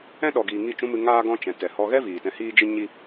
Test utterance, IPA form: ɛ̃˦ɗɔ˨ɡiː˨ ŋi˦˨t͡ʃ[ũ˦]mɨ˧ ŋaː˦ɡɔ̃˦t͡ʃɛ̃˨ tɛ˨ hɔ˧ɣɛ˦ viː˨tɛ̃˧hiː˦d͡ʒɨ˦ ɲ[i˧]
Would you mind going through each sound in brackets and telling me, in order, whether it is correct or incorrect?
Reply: correct, incorrect

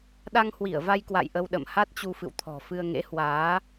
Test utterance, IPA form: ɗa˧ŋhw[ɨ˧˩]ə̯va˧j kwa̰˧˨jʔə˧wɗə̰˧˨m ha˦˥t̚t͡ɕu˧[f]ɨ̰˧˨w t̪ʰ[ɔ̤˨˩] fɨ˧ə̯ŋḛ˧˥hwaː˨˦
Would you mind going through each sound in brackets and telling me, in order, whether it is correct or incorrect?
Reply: incorrect, correct, correct

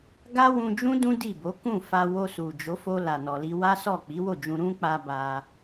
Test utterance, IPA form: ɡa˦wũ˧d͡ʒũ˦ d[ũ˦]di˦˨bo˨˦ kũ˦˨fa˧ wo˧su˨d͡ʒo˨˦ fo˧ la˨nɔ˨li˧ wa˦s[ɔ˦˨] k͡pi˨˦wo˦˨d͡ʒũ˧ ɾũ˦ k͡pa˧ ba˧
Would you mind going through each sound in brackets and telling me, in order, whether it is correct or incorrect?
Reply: correct, correct

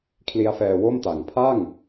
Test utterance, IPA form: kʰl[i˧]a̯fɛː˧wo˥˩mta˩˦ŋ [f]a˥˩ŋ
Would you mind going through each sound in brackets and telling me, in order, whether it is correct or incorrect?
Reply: incorrect, incorrect

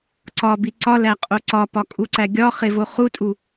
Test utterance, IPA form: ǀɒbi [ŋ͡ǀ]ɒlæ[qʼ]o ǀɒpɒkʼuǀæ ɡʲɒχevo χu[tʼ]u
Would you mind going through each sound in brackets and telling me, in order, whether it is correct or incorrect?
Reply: incorrect, correct, correct

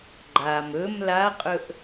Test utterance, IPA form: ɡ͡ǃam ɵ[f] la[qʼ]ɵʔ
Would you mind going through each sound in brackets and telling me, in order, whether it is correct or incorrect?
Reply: incorrect, correct

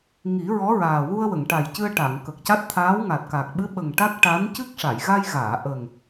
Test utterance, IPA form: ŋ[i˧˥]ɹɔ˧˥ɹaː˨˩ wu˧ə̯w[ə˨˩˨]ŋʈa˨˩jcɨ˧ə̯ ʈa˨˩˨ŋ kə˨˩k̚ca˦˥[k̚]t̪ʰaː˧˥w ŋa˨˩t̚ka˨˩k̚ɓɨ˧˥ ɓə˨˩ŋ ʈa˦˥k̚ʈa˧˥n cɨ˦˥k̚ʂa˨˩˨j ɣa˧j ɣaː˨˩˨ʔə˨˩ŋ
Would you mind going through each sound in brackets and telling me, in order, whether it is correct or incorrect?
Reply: incorrect, correct, incorrect

